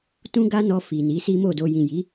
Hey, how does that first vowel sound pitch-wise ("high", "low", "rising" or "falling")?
high